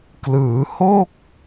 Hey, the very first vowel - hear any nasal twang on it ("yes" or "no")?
no